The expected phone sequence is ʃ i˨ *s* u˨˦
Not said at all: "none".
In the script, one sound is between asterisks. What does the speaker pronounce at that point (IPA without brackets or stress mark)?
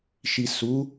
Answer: s